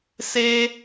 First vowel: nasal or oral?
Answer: oral